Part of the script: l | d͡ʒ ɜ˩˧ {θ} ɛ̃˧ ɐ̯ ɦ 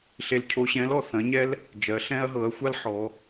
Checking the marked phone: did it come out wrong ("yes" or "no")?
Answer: yes